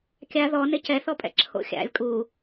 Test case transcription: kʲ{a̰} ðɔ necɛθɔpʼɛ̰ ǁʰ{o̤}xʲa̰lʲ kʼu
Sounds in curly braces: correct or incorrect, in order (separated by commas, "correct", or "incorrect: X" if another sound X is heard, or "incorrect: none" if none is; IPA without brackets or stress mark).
incorrect: a, incorrect: o̰